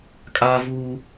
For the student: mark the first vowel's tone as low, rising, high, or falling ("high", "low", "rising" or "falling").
high